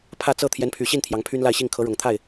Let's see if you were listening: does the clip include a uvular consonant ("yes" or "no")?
no